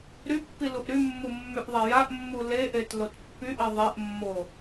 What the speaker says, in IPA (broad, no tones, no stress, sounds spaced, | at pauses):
ɾ y pː i l u ʔ ɾ y mː u mː y ʔ ðˤ ɛ j a ʔ mː u l e ʔ e t l o t pː y ʔ i ðˤ e ʔ mː o